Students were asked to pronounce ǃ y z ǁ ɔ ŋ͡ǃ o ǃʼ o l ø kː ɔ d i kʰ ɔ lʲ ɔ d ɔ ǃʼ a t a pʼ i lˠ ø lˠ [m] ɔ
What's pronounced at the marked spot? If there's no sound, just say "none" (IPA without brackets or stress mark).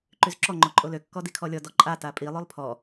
pʰ